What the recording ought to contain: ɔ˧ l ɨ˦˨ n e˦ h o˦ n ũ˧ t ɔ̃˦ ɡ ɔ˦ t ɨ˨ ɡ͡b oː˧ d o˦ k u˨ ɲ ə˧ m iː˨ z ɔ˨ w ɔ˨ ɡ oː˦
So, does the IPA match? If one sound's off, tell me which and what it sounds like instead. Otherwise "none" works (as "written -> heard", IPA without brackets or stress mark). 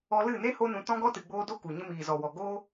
none